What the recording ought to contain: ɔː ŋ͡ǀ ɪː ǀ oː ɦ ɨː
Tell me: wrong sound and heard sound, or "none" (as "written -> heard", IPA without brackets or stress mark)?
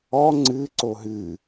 ɪː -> ɨː